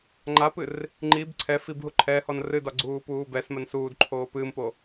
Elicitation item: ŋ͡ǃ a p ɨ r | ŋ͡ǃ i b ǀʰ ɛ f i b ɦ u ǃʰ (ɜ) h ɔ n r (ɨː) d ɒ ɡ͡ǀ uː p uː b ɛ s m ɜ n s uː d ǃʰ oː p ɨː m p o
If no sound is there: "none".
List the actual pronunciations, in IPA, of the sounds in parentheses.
ɛ, ɨ

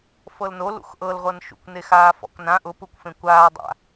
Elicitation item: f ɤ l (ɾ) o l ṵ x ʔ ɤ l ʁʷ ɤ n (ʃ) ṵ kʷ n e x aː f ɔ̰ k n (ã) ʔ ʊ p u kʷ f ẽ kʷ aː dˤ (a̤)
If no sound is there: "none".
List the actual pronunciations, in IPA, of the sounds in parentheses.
n, ʃ, ã, a̰

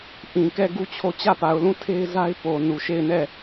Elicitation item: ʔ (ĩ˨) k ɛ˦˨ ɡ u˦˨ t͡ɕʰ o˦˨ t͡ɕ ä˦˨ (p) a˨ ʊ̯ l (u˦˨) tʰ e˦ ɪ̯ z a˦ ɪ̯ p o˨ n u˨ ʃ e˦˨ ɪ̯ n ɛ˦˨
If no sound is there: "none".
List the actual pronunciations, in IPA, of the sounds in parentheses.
ĩ˨, p, ũ˦˨

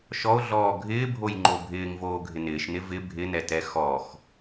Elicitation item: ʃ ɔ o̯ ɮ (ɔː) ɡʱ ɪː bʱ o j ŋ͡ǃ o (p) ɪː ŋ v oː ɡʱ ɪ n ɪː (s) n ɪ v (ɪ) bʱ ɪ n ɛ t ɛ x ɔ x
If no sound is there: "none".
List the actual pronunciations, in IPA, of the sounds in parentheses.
ɔː, bʱ, ʃ, ɪ

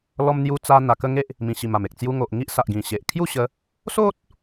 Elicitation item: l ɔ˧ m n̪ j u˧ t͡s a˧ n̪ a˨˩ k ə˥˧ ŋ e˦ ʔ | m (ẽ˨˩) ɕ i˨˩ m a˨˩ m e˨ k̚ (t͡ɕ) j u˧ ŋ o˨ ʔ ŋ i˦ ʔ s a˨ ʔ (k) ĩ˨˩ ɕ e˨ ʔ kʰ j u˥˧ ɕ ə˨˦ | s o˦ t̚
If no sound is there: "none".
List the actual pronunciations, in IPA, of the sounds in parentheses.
ĩ˨˩, t͡s, ɡ

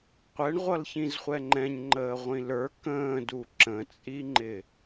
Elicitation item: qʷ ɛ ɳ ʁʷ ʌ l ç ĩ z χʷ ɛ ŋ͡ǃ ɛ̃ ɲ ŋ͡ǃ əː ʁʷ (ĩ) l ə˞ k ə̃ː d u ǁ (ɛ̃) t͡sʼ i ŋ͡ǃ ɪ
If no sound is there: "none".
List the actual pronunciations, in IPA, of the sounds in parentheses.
ĩ, ə̃

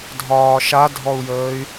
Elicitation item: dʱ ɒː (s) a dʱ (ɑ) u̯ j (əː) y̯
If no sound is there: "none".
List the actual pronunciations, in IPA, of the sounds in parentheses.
ʃ, ɔ, əː

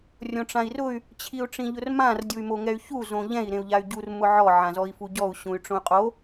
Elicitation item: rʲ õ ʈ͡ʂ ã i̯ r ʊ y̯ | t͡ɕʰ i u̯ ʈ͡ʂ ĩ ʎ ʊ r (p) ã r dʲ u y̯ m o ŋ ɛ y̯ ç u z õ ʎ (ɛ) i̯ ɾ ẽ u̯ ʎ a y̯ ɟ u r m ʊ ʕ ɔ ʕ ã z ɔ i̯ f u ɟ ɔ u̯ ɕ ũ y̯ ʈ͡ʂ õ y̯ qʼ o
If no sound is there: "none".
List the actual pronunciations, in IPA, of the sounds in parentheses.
m, ɛ̃

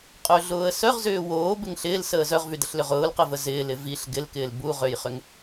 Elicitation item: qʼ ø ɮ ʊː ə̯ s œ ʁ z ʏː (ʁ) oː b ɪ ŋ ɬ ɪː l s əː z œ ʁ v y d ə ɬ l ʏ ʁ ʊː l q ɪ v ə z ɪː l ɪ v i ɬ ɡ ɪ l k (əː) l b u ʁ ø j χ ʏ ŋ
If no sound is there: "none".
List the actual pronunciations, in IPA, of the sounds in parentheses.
w, ɪː

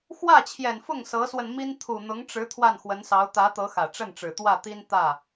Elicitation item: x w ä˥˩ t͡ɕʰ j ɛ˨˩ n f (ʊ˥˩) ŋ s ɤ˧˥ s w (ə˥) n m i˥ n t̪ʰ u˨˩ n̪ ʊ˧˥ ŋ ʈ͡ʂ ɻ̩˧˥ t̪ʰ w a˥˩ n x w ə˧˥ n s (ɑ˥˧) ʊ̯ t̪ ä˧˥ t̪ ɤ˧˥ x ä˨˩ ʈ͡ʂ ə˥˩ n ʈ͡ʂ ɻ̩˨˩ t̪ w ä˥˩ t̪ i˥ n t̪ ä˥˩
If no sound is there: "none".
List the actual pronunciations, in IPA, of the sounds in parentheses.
ʊ˥˩, ə˧, ɑ˧˥

